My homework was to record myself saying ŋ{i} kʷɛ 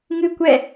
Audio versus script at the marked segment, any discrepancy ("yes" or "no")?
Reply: yes